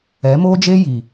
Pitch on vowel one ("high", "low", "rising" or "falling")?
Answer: rising